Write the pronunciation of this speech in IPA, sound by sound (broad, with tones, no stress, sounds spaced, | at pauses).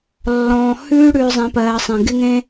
lː ɔ̃ː˨ h ʉː˦ ɽ ʉː˨ zˤ ẽ˨˦ p ɜː˨ sˤ ẽ˨ ɡ ɪ˦ ŋ ẽ˦